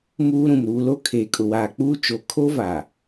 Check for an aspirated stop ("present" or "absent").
present